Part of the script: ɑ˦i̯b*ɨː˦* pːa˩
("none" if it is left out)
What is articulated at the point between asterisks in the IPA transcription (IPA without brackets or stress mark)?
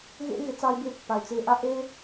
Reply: ɪː˦